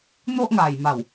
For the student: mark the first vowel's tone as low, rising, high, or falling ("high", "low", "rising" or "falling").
high